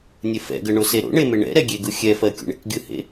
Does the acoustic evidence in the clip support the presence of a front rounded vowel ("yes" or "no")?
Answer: no